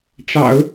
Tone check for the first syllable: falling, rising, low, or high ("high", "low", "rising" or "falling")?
low